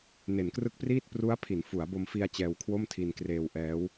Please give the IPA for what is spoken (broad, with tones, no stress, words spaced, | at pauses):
ne˩˦nkrɯ˦˥k̚priː˥˩t̚ pru˦˥a̯ pʰi˩˦nfu˩˦a̯ bo˧mfi˧a̯ t͡ɕɛː˧wkʰwo˥˩mtʰi˧n kreː˧wʔɛː˦˥w